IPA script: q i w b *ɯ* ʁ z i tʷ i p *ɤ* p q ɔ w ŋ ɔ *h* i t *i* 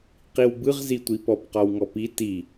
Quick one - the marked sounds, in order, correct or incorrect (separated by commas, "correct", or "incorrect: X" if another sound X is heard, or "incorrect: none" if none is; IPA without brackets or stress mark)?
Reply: correct, incorrect: ɔ, incorrect: p, correct